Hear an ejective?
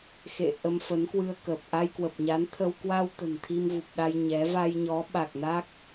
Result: no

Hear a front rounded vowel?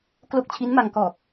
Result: no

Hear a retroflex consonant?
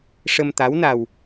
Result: yes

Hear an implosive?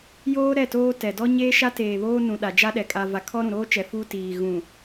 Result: yes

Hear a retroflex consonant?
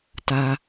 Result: no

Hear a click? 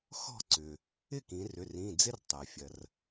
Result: yes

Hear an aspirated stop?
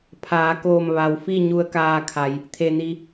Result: yes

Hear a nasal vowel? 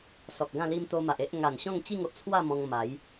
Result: yes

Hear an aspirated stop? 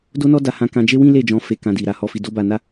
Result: no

